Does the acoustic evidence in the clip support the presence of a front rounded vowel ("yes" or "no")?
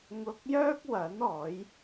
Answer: yes